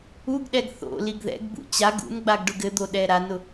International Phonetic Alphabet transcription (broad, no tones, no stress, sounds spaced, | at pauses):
u ɡ ɗ ɛ ɡ θ o̰ l i ɡ ð ɛ̰ ɡ b ṵ t͡ɕ a ɡ ṵ n ɡ͡b a ɡ ɖ ʊ ɡ ɘ d̪ o ɗ ɛ ɾ a n ʊ